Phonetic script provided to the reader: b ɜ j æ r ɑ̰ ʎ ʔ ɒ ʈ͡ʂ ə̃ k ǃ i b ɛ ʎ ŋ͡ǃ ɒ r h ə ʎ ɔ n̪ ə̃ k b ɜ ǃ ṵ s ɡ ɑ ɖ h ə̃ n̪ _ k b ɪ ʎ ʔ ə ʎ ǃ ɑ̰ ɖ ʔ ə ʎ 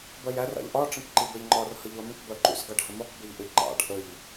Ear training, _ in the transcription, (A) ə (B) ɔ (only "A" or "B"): B